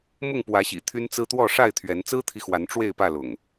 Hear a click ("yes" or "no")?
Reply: no